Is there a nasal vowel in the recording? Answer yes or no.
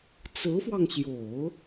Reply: no